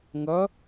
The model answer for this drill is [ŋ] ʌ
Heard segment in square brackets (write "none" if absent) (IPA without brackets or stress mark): ŋ